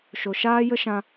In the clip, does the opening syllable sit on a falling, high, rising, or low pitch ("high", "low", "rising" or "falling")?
low